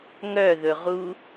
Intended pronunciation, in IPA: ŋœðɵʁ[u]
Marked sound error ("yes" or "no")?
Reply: no